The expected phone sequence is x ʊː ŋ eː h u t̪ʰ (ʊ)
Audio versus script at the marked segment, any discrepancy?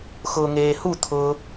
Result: no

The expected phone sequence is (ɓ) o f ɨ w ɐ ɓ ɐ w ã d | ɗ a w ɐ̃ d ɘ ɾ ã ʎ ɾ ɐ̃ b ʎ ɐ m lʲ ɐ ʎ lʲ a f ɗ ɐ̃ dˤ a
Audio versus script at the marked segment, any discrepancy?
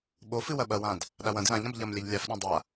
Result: no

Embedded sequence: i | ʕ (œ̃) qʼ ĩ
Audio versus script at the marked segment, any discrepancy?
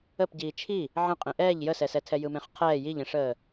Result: yes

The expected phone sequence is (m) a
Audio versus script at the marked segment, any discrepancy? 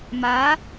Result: no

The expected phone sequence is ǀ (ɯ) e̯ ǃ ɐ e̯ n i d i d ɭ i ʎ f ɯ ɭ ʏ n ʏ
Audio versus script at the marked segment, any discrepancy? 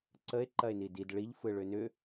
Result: yes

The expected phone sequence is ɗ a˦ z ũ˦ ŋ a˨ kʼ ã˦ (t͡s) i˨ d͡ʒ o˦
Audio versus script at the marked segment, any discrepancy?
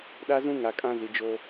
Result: yes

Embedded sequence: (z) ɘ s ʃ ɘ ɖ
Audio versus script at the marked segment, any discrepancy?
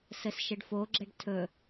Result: yes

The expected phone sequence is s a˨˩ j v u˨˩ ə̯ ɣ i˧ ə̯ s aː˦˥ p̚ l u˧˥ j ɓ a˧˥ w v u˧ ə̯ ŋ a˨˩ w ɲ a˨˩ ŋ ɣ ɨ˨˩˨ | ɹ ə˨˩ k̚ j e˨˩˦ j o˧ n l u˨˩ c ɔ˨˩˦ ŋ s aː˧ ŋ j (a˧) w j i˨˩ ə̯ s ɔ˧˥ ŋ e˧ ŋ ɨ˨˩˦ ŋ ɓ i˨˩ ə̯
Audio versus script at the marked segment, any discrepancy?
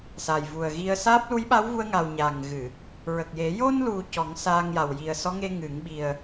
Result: yes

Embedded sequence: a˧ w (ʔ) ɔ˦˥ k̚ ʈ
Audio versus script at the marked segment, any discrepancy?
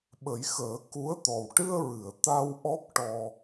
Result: no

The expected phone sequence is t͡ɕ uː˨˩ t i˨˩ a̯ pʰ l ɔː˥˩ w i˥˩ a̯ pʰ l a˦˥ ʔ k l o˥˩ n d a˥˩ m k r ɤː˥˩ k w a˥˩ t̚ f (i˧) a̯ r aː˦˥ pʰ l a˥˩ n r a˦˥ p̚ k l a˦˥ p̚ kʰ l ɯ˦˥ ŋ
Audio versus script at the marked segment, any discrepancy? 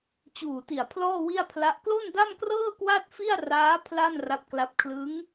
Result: yes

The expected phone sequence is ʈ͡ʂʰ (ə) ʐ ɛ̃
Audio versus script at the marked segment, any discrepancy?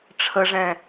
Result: no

